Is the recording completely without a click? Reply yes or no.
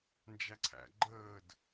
no